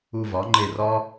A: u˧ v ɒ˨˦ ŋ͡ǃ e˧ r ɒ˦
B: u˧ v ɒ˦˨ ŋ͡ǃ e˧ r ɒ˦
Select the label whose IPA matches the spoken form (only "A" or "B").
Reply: A